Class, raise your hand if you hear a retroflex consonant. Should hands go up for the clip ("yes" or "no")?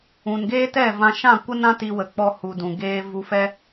no